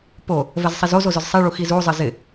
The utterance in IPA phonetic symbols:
po | vɛzsˤizozo zʊzsˤiɭu xizuzˤɪ zɪ

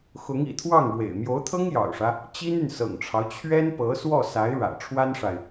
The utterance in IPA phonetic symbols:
xʊ˧˥ŋḭ˨˩ t̪ʰwɑ˥˩ŋɻwḛ˨˩ɪ̯ mjo˧˥ʊ̯t̪ʰɤ˥ŋjɑ̰˨˩ʊ̯ʂä˦ | t͡ɕi˥ny˨nsɤ̰˨˩ŋʈ͡ʂʰɑ˦ʊ̯ t͡ɕʰɥɛ˥npɤ˧˥ swɔ˥˩sa˧˥ɪ̯ɻä̰˨˩ ʈ͡ʂʰwa˥nʂa˨ɪ̯

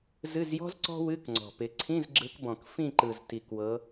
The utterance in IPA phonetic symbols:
zɨ˧˥˧zjɔ̤˥z ǀɔ̤˥wɨ˧˥˧k ŋ͡ǀɔ̤˨˩pɪ˨˦ ǀʰĩ˧˥˧zɡ͡ǁɯ˨˦kbɔ̃˨˩k fĩ˥˨ǃɯ˨˩z ti˨˩kwɤ˨˦

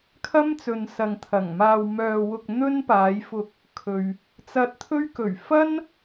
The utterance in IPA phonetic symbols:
kʰɐ˥m t͡sɵ˨nsɐ˨ŋt̪ʰɐ˨˩ŋmaː˧w mœː˧ wʊ˧k̚n̪ɵ˥npaː˨˧jfʊ˧k̚ | kʰɵ˨ɥ | t͡sɐ˧t̚t̪ʰɵ˥ɥ kɵ˨˩ɥfɐ˥n

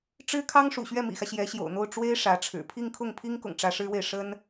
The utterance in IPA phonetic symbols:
ʈ͡ʂɻ̩˥kʰɑ˥ŋ ʂṵ˨˩ɕɥɛ˥˩mḭ˨˩xä˦ ɕjɛ˧˥ɕjo̰˨˩ʊ̯n̪o˥˩ʊ̯ ʈ͡ʂwe˥ɪ̯ ʂä˧˥ʈ͡ʂʰɻ̩˨˩ pʰi˥˧ŋkʰʊ˥˩ŋpʰi˥ŋkʊ̰˨˩ŋ ʈ͡ʂä˧˥ʂɻ̩˥we˨ɪ̯ ʂə˥n

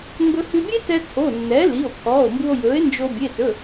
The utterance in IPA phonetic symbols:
ŋɡɵ˧hʉ˧bʲe˥ tɛ˥ tʰo˩˧˩nːɛ˩˥ li˩˧˩o̯pʰɔː˩˧˩o̯mbu˧o̯ jɵː˩˥e̯nd͡ʒo˧ bʲe˩˧˩tɵ˩˧˩

